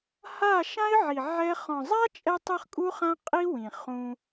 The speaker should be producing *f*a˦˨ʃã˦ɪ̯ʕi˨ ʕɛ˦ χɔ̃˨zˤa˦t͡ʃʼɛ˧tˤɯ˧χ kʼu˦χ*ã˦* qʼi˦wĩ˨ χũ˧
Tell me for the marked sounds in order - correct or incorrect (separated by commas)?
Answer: incorrect, correct